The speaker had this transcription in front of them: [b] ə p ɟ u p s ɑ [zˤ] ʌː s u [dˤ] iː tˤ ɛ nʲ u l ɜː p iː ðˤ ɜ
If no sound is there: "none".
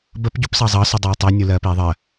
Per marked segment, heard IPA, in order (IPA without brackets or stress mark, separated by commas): b, zˤ, dˤ